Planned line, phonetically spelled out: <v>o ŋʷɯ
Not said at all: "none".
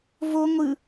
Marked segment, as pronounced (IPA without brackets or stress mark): v